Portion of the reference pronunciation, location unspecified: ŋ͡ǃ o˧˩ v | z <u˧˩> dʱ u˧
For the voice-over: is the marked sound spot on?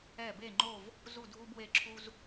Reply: yes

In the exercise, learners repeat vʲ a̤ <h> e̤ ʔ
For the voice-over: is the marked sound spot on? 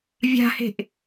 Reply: yes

